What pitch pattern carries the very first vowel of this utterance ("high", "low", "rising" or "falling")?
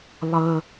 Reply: high